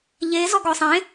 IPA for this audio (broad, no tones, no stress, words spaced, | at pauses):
ʎe zɔɡɔsˤẽ